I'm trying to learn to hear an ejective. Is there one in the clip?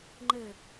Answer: no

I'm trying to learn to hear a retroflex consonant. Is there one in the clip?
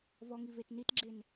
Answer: no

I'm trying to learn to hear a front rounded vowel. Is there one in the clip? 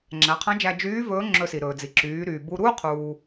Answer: yes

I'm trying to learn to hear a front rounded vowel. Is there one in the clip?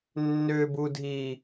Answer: yes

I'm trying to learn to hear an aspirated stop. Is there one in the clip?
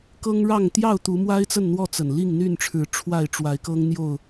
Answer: yes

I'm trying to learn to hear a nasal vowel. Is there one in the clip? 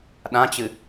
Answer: yes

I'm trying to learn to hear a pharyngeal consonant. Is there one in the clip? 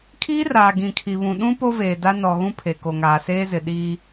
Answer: no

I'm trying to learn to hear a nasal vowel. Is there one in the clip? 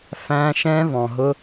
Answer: yes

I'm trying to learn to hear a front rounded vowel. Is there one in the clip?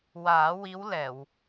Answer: no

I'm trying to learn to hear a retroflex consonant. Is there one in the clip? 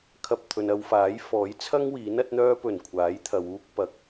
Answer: no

